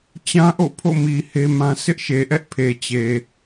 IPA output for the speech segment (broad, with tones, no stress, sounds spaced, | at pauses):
t͡ɕ ã˦ ʔ o̰˦˨ pʰ o̰˦˨ m i˨ h e˦ m ã˦ s ɪ˦ ʔ ʃ e˨ ʔ ɛ˦ ʔ pʰ e˨ t͡ɕ e˨